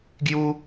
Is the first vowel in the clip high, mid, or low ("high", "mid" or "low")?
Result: high